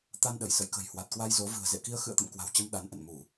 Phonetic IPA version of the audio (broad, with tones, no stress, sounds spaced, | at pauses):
t̪ a˧ n ɗ ə˧˩ j s ə̰˧˨ j k ə̤˨˩ j h w a˨˩ t̚ k w a˧ j z o˨˦ v ɨ̤˨˩ ə̯ z ḛ˧˨ k i˧ ə̯ x ɨ̰˧˨ ə̯ t̪ ə̰˧˨ m k w a̤˨˩ w t͡ɕ ə˧ m ɗ a˨˦ n ʔ ə̰˧˨ n m u˧˩˨